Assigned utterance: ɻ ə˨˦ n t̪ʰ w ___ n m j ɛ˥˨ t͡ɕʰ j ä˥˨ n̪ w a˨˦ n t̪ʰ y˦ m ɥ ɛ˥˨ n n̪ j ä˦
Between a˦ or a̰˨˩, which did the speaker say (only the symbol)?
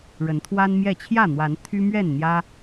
a˦